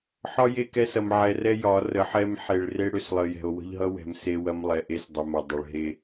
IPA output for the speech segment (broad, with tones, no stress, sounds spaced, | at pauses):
ħ ɒ˦ j e˦˨ k ɛ˦ s ɐ˨ m ʕ ɛ˨ r ɛ˦ j ɒ˨˦ r ə˨˦ ħ ɛ˦ m ħ e˨ ɭ r e˦ ɽ ʏ˦˨ s lˠ ə˨ j ɛ̤˨ o̯ w ə̤˦ ʎ ɦ ʌ˦ w ɛ̤˨ m s e˦ w ɐ˦ m lˠ ɛ˨ ʔ e˦ s dˤ ʏ˨ m ɐ˨ dˤ ə˨ ɭ ɦ e˦